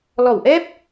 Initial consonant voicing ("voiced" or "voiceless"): voiced